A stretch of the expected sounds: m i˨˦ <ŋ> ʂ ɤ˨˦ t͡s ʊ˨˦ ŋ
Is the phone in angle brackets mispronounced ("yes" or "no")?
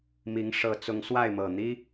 no